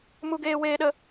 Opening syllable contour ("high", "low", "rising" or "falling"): high